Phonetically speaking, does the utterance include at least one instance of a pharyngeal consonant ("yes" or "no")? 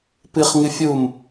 no